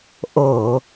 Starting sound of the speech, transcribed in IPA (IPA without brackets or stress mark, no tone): ʔ